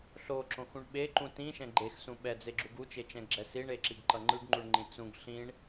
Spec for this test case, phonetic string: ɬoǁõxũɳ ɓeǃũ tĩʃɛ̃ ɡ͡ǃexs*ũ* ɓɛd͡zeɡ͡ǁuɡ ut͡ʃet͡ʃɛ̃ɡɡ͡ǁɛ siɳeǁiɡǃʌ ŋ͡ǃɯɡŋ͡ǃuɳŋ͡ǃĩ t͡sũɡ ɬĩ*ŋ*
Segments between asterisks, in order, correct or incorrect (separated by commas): correct, incorrect